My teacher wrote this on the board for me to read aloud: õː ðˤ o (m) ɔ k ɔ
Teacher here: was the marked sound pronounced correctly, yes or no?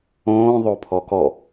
no